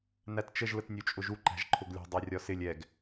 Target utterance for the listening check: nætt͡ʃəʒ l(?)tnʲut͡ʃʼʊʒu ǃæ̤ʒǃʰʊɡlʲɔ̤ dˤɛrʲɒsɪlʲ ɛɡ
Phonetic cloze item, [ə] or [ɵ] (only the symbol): ə